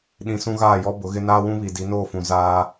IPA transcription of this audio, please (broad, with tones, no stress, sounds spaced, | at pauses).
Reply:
ɗ ĩ˨ s ũ˦ ɣ aː˦˨ j ɔ˦ b ʊ˨˦ ɣ ɪ˦ n aː˦ w ũ˦ β i˨ d i˨˦ n oː˦˨ f ũ˨ z aː˦